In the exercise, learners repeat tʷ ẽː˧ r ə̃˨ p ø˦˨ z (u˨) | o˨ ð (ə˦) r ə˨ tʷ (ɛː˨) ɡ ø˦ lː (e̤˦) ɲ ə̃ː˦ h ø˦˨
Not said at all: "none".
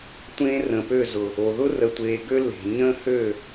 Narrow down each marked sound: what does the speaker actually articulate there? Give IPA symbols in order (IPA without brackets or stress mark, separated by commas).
ʊ˨, ʊ˦, eː˨, e̤˨